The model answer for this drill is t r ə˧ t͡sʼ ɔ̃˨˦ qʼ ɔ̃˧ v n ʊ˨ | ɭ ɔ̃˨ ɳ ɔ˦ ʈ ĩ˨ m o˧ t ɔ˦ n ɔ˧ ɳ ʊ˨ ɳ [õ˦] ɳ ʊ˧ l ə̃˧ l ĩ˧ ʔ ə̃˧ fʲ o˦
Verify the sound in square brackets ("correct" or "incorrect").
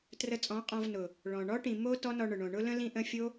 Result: incorrect